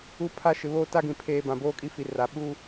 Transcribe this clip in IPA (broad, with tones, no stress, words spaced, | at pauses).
u˦pʰa˦ ʃɪ˨βoː˦ta˦ɡĩ˨ pʰeː˦ bã˨boː˦kʼi˦fi˨ ra˨ ɓu˦